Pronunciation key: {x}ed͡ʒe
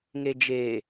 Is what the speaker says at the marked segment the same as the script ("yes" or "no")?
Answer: no